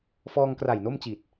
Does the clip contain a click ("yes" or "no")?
no